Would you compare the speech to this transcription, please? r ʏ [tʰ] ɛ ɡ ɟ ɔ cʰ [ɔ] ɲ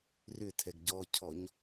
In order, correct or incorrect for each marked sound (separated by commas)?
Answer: correct, correct